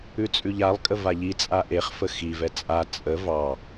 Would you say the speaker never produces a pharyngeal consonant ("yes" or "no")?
yes